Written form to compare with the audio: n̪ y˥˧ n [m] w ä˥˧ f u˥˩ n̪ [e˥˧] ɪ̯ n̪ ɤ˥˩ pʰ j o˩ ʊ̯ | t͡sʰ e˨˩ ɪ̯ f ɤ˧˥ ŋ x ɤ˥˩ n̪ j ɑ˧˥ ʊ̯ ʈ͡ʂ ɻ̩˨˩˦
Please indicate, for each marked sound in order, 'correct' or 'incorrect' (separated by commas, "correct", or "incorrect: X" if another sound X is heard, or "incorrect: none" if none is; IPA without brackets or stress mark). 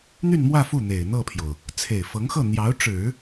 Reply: correct, incorrect: e˨˩